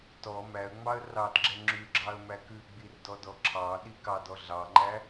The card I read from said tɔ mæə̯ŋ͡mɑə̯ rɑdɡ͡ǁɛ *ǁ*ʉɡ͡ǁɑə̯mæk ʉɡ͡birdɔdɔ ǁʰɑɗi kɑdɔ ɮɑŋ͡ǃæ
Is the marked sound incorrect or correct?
incorrect: ŋ͡ǁ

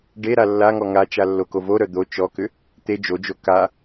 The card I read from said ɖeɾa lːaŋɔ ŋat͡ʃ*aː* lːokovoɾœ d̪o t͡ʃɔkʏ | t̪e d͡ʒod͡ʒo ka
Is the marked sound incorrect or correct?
incorrect: a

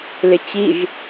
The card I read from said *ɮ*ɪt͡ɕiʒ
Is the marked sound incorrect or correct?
incorrect: l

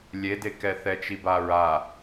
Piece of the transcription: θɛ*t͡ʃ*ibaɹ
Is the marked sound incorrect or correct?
correct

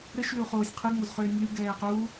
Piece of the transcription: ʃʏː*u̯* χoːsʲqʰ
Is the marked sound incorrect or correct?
correct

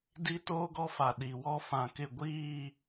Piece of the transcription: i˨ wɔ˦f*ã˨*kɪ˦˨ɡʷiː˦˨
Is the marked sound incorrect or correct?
correct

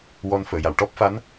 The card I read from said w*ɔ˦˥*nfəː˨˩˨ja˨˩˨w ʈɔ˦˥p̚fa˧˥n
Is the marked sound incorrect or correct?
incorrect: ɔ˧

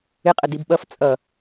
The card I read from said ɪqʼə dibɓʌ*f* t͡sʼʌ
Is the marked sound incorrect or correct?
correct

